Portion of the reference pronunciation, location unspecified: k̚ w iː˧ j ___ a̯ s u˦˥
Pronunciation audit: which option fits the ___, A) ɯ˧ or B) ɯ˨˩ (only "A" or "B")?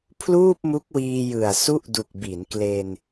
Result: B